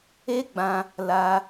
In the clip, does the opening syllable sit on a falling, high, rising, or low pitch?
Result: high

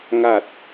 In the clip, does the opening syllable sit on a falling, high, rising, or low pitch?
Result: low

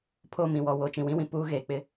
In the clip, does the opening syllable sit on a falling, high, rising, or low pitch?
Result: falling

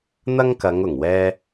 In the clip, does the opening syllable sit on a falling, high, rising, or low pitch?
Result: high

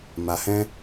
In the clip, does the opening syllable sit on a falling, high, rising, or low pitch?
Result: low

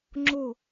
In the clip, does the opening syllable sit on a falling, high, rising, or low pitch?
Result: falling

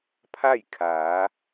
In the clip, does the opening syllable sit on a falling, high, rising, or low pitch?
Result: falling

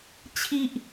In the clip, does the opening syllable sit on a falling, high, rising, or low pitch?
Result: high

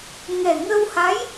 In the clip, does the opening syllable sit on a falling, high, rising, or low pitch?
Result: low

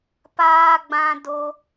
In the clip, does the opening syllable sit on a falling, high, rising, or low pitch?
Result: high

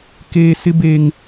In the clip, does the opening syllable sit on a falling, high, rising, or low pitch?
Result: high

